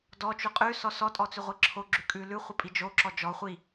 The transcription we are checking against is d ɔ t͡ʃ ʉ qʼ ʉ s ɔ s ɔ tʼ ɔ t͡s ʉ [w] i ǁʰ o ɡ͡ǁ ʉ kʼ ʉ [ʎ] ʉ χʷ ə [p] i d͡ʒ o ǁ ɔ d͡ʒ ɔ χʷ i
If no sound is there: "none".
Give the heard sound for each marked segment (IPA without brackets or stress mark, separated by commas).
ʁʷ, l, pʼ